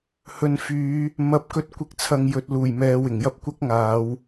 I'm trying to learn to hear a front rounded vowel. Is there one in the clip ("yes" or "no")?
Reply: yes